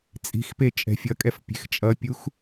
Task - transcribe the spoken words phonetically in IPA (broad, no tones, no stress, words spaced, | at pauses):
t͡sʼi̤xpe t͡ʃʼɛ̤fʲʌkʼɛf pʲe̤xt͡ʃʼʌpʲux